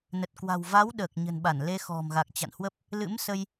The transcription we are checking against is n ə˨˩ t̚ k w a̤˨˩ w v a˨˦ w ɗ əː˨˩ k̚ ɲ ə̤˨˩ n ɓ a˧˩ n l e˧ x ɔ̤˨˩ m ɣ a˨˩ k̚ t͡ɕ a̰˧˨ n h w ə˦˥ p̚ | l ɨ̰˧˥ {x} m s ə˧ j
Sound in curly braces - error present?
yes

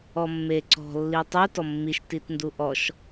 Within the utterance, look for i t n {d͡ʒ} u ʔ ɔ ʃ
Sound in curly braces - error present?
yes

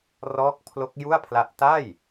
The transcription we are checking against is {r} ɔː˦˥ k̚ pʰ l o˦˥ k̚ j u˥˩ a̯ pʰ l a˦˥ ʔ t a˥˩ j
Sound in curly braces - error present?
no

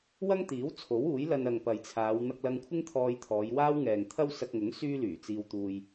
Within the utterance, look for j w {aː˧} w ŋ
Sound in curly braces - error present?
yes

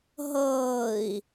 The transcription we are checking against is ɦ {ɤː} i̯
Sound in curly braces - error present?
no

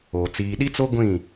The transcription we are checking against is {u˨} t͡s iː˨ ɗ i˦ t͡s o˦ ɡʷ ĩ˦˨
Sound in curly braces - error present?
yes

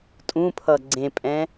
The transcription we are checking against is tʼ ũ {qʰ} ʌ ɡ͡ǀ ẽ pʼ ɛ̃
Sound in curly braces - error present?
yes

